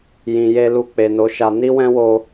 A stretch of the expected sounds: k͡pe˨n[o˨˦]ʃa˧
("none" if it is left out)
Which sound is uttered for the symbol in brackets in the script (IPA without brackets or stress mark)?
o˨˦